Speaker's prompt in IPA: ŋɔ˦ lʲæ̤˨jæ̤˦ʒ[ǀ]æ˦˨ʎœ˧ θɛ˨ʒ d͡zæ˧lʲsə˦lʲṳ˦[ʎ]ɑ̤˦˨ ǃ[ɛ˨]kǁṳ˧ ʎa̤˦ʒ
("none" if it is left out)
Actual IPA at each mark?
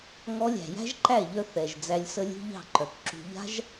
ǃ, ʎ, œ˨

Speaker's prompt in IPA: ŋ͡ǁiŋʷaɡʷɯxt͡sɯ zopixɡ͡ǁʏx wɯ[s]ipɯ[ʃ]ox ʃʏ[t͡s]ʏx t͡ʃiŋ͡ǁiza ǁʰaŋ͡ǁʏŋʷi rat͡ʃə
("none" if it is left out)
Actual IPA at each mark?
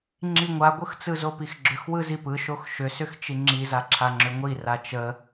z, ʃ, s

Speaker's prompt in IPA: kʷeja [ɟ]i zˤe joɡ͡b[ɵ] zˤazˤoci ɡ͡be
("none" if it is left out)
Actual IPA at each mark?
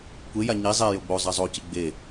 ɲ, o

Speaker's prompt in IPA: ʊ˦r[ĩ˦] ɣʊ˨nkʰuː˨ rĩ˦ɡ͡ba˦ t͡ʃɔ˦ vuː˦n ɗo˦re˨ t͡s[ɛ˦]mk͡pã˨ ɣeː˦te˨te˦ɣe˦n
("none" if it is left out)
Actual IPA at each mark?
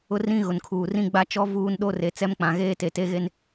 ĩ˦, ɛ˦

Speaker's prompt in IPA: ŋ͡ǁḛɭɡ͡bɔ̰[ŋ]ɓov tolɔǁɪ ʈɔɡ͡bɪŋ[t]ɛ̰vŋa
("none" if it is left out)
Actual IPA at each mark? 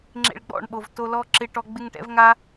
ɳ, ʈ

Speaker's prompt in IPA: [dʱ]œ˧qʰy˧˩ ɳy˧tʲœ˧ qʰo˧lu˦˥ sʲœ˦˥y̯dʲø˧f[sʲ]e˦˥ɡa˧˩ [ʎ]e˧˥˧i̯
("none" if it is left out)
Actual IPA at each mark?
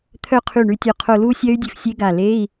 t̪ʰ, sʲ, l

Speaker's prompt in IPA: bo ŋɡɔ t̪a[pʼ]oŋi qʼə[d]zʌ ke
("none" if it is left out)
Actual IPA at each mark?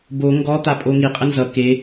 pʼ, n

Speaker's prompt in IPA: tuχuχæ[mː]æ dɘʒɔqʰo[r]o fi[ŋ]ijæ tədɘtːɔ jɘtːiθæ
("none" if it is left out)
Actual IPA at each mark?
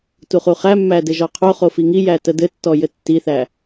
mː, χ, ŋ

